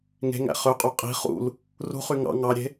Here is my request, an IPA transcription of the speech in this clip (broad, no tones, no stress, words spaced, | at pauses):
ŋe̤ŋæ̰ χøqʼu qʼi̤ χṵl | rṳχy ŋɑ̰ ŋɑɾʲe̤